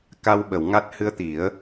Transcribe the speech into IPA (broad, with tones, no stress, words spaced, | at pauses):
ka˧wɓə˨˩˨w ŋa˦˥t̚ hɨ˧ə̯t̪i˨˩˦ə̯